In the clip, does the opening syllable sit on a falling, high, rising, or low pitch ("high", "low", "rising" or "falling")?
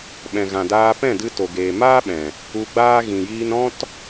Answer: low